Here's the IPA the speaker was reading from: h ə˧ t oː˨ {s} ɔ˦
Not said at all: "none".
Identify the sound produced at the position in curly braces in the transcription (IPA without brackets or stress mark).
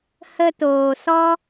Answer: s